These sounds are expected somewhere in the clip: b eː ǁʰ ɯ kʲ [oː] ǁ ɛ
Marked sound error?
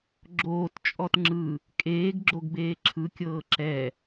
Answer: yes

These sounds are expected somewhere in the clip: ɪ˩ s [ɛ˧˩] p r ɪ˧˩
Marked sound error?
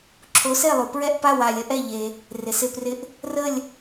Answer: yes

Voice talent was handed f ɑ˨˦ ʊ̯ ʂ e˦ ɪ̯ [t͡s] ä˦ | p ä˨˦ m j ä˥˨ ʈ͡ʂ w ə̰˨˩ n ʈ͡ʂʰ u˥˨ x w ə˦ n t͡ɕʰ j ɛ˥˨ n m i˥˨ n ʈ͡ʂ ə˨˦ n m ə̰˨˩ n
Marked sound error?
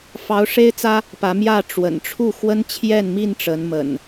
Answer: no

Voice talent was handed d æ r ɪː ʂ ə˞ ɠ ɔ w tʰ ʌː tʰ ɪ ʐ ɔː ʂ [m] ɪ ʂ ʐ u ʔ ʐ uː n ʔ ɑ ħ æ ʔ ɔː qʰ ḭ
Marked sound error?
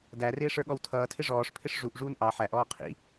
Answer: yes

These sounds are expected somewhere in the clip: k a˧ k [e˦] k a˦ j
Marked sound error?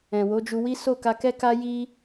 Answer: yes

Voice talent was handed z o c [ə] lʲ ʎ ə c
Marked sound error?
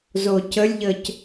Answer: no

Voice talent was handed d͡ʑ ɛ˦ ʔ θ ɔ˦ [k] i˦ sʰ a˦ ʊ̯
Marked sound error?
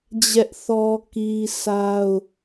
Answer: no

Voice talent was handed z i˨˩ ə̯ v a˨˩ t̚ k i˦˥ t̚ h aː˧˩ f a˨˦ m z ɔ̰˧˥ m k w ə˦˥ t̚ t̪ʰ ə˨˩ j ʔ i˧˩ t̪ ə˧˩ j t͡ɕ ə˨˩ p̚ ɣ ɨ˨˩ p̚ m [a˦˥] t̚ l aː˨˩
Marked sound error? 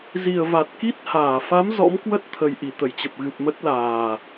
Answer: yes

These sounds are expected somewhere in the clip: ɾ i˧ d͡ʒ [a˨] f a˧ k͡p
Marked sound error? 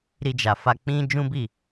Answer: no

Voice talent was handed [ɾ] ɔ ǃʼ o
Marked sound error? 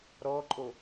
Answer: no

